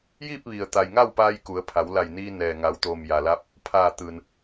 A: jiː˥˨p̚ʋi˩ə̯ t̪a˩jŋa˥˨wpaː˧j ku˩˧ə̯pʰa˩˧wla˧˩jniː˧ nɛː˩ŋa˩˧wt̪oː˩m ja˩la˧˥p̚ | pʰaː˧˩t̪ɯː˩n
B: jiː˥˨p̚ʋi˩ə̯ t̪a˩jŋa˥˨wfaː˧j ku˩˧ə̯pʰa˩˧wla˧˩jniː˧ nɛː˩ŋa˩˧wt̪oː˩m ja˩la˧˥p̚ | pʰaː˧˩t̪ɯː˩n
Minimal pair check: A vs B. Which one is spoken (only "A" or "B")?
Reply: A